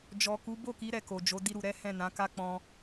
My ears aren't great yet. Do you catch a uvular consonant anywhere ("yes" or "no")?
no